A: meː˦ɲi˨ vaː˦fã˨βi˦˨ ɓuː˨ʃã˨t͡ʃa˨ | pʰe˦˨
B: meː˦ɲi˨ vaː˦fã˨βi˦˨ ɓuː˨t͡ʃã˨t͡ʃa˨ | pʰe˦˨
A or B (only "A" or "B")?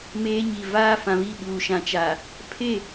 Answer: A